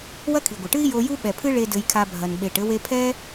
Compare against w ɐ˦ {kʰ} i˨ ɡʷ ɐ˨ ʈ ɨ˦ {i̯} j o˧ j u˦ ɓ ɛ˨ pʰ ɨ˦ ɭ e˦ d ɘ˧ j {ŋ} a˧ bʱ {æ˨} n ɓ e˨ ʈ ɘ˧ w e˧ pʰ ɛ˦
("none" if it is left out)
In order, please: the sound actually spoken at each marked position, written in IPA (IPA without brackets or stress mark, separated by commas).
kʰ, i̯, kʰ, ɐ˨